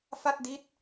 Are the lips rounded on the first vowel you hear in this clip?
no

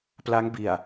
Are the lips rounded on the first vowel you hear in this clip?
no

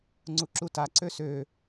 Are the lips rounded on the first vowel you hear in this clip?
yes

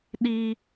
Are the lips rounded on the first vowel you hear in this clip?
no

